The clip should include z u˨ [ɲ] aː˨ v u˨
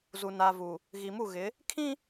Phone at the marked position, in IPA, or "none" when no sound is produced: n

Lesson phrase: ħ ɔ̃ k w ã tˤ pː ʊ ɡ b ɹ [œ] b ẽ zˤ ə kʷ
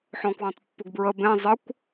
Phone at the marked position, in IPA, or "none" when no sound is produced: ə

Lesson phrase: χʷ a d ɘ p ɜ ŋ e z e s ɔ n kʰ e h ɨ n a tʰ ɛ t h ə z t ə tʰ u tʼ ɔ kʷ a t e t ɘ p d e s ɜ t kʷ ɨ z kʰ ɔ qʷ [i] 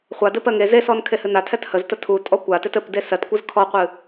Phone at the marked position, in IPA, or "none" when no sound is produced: ɨ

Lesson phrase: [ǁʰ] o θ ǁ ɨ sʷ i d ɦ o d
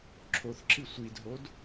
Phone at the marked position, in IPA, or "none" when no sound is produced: ǁʰ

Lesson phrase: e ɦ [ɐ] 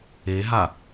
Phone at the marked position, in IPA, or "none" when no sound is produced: a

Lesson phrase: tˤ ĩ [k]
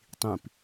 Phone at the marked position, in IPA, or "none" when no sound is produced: p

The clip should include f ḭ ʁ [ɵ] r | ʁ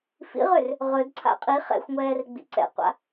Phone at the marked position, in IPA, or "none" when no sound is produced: ø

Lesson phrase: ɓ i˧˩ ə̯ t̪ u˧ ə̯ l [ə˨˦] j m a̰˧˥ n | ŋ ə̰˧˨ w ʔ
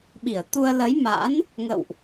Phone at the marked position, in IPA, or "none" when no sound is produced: ə˨˦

